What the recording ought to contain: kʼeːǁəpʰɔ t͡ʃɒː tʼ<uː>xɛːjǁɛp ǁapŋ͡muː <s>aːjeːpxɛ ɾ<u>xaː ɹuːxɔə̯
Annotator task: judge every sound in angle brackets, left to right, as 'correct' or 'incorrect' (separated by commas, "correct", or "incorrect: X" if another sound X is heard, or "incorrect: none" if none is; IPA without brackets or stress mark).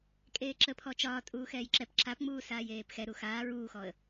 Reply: correct, correct, correct